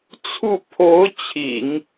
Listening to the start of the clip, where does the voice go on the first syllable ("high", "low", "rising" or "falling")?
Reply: falling